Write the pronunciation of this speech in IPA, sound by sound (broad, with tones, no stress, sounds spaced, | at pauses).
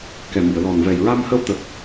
k ɛ˨˩ m i˨˩˨ ə̯ l ɔ˨˩ n v ɛ˨˩ j ɹ a˧ m h ə˧ w t̪ ə˨˩ k̚